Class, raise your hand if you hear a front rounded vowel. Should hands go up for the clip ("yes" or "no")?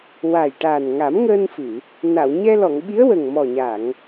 no